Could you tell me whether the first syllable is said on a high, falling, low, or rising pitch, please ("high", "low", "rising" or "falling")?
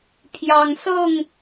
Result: low